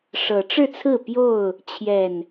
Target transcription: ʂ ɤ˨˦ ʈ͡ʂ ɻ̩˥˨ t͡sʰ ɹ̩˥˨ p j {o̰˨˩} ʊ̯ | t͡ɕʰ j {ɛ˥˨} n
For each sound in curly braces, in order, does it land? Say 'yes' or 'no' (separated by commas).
no, no